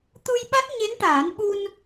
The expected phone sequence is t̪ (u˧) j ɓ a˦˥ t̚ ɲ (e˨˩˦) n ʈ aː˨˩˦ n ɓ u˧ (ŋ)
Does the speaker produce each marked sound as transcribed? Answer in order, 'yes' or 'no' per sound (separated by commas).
yes, no, no